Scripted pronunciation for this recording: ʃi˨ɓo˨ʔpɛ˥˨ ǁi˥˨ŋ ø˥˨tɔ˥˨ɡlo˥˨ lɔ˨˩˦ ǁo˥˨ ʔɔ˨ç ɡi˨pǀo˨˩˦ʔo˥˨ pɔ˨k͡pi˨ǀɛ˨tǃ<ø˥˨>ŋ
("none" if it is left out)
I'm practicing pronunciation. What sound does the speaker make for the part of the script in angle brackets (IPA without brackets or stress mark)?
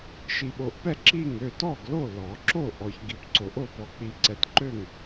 ø˥˨